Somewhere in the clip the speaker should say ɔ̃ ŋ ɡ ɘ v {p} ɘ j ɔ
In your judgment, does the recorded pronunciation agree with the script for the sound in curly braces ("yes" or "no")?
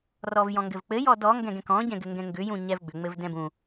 no